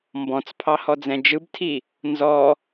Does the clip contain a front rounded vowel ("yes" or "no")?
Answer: no